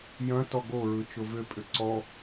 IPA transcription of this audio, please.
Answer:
j ɐ̃ t ɔ ɡ o ɹ ɯ t͡ʃ ʊ v ʏ pʼ ʏ ǀ ɔ

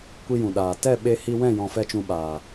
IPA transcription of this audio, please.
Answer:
kʷ i˦ j ũ˨ ɗ aː˨ t ɛ˦˨ ɓ e˧ h i˧ w ɛ̃˦˨ j ɔ̃˧ f ɛ˦ t͡ʃ ũ˧ ɓ aː˨

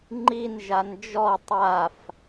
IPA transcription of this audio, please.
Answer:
ŋ͡ǃ i n ʒ a n d͡ʒ ɔ tˤ a f

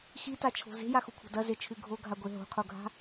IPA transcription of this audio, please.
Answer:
x i t a t͡ʃʰ o̤ z e̤ j a x u kʷʰ a̤ d ɐ z e t͡ʃʰ ʉ ɡʱ o ɡʱ a ɡʷ e ɦ o̤ qʰ o ɡʱ a̤

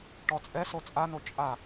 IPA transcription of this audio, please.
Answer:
ʈ ɔ t͡sʼ ɛ s o t͡sʼ a n o t͡ʃʼ a

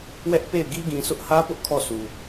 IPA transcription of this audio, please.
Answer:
w ɛ˦ ʔ p e˦˨ ɪ̯ ɡ i˦ ɡ ĩ˨ sʰ ʊ˦ ʔ h ä˦ p ʊ˦ ʔ kʰ ɔ˦˨ s u˨

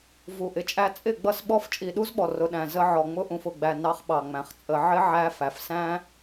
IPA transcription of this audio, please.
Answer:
v u˨ ʔ ɪ˨ t͡ʃʼ æ˦ t͡sʼ ɪ˦˨ ɡ͡b ʌ˦ s ɓ ɔ˦ f t͡ʃʼ i˨ ɗ u˦ z ɓ ɔ˨ r ʊ˨ ɗ æ̃˨ z ə˦ ʕ ɔ˨ ŋ͡m ʊ˦ ʔ ũ˨ f ʊ˨ ɡ͡b æ˨ n ɑ˦ χ ɓ ɑ˨ ŋ͡m æ̃˨ χ t͡sʼ ə˨˦ ʕ ɪ˦ ʕ æ˦ f æ˨ f s æ̃˦

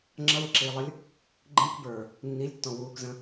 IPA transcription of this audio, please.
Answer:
ŋ͡ǁ ʌ w ɪ ǁ iː lˠ ə lʲ | ɡ͡ǃ ĩ k b ə˞ | nː i lʲ tː ɔ̃ w uː k z ə̃

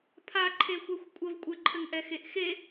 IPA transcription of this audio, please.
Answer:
pʰ a ǃʰ e xʷ ɛ xʷ kʷʼ ə v kʷʼ ɘ ǃʰ ɘ ŋ ʔ ɛ x e ʔ x e

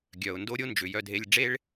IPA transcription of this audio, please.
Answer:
ɡʲ œ˨ ʊ̯ n d o˦ ɾʲ o˦ n d͡ʒ ʏ˨ j œ˧ dʱ e˧ lʲ ɖ͡ʐ e˦ ɭ

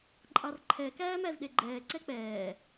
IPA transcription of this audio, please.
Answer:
ǃʼ ɑ r ǃʰ ɛ k æː m æ z ɗ e ɡ͡ǃ ɛː ǀ ɛ k͡p ɛː

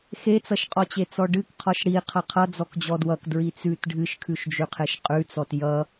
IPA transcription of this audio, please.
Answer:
x e t͡s ʌ ʃ qʼ ɔ t͡ɕ e t͡s ɔ ɖ ɨ k qʰ ɔ ʃ ɽ i qʰ ʌ qʰ ʌ d͡z ɔ k d͡ʑ ɔ d w ʌ k d ɹ i t͡s ʉ t ɖʱ ɨ ʃ kʰ ʉ ʃ d͡ʒ ʉ qʰ e ʃ qʼ ʉ t͡s ɔ t j ʌ

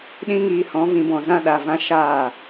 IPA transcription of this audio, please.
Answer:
ɗ ĩ˦ ŋ iː˧ h ɔ̃˨˦ v ĩ˧ b ɔ̃˨ z ã˧ ɗ a˨ v ã˧ ʃ aː˦˨

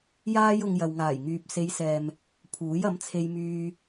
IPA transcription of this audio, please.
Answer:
j aː˥ j ʊ˧ ŋ j ɐ˨ w ŋ aː˨˩ j ŋ yː˨ p̚ s e˨˧ j s ɛː˨ m | pʰ uː˨˥ j ɐ˨˥ m t͡sʰ e˧ j m yː˧

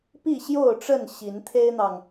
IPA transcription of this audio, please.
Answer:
p i˥˨ ɕ j o˥˨ ʊ̯ ʈ͡ʂ ə˥˨ n ɕ i˨˦ n t̪ʰ e˦ ɪ̯ n̪ ɑ˨ ŋ

